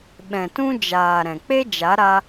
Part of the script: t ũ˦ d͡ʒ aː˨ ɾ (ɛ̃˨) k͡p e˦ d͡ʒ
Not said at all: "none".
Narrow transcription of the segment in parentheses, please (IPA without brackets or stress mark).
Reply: ɛ̃˨